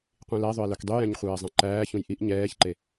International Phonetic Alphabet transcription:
qʷĩlæðˤøe̯ lœkdˤyjɛ̃ɲ χʷɛːzˤɛ̃ǃæːçũj ʔiʔ ɲɛːçǃe

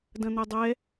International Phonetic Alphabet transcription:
dɐ̃n̪ɛdˤɛ

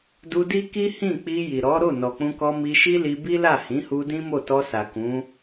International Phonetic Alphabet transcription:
du˧di˦ki˦ hĩ˦˨k͡pi˧ ji˨ɾɔ˨˦ ɾo˦˨nɔ˨k͡pũ˧kɔ˧ mi˧ʃi˦li˧ bi˦la˦˨ hĩ˨˦hu˧ dĩ˦mo˦˨ tɔ˧sa˨ kũ˨˦

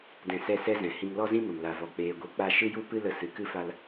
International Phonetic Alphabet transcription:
dɛ̃˧sɛ˦˨sɛ˦zɛ̃˨ hĩ˧ŋlɔ˦zĩ˦mə˨m la˨vɔ˨ k͡peː˧ɡʷi˧k͡pa˦ ʃɨ˦ju˦pɨ˦lə˧ sɨ˨˦kɨ˦fa˦l

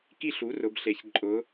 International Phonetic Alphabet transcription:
ki˥˨ ɬu˩˥rʊ˩˧bɬe˩˧ç ǃʼʊ˩˧

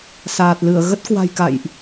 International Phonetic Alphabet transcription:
saː˨˩t̚lɨ˧˩ə̯ ɣə˦˥t̚kwa̤˨˩j ka̰˧˨jʔ

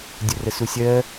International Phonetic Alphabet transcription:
dʲʊrəsusʲɜ

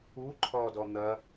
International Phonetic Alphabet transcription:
u ǃʰɔdɔ n̪ɐ

